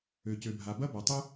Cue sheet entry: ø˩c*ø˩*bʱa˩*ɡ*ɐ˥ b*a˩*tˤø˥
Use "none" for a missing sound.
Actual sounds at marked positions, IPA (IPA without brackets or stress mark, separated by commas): ø˩, b, a˩